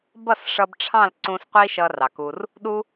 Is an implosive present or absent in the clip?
present